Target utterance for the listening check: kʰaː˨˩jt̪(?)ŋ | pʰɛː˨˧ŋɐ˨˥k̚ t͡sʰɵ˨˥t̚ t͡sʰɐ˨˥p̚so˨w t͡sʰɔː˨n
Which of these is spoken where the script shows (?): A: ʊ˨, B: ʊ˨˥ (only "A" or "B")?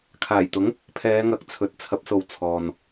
B